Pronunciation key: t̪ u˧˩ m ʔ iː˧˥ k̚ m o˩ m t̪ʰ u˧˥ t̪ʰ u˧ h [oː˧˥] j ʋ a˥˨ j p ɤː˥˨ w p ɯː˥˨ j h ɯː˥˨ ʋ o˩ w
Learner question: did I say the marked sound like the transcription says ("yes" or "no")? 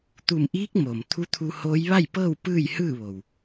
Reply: yes